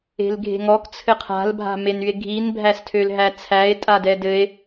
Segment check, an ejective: present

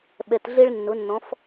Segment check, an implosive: present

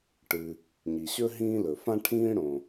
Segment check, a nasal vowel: present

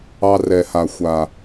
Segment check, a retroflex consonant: absent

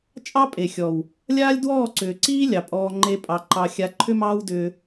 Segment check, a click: present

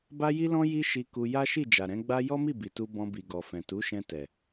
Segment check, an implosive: absent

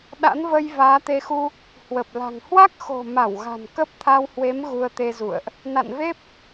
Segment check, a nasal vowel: absent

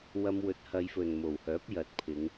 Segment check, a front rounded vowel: present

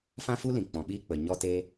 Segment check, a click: absent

